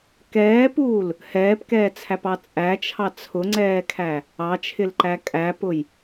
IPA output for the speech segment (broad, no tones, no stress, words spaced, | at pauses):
kɛːpuːl | hɛːpkɛːt͡sʰæpɑ t͡sʼæt͡ʃʰɑ t͡sʰʊŋ͡ǀɛːkʰæ | ɑt͡ʃʰɪlǃæ kʼæpʊj